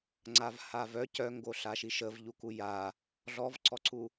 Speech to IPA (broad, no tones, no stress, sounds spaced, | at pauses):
ŋ͡ǀ a v h a v œ c œ ŋ ɡ o ɬ a ʃ i ʃ ə v ʎ u k u j a | ɮ ɔ v ǀ ɔ ǀ u